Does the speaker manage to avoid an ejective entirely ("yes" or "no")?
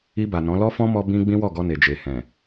yes